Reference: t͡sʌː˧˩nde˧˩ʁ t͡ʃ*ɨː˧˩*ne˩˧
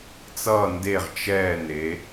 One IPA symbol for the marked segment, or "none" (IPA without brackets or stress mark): ɛː˧˩